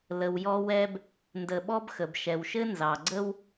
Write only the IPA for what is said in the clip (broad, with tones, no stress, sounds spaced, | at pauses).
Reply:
l ə˨ w j ɔ˦ w ɛ˦ b | n d ə˨ ɓ ɔ˥ b x ə˩ b ʃ ɛ˩ w ʃ ɘ˥ n z ɑ˩ ɡ͡ǀ ə˥ w